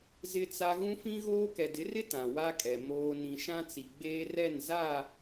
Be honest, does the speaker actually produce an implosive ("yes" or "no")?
no